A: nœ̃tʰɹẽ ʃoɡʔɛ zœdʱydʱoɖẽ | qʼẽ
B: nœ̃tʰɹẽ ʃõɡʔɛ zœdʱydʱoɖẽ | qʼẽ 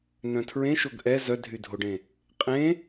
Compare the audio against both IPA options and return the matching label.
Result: A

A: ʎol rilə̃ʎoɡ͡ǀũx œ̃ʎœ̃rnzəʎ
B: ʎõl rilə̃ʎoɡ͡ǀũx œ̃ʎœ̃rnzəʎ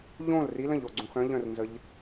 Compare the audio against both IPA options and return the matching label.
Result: B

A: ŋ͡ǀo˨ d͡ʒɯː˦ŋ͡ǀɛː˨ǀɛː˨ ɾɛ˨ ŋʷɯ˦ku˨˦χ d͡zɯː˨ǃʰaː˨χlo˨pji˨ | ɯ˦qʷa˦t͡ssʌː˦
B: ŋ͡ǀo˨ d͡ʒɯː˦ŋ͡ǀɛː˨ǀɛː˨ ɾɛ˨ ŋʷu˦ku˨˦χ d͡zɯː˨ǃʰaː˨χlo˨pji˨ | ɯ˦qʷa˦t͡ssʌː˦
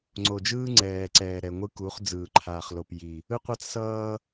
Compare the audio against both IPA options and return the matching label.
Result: A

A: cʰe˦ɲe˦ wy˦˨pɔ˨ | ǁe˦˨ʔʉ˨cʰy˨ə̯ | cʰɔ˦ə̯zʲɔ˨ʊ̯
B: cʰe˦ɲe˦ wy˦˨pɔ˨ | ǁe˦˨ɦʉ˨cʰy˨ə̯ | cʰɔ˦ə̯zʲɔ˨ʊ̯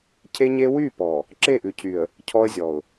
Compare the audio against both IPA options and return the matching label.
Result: A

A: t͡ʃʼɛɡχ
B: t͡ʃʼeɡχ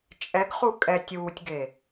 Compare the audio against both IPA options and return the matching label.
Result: A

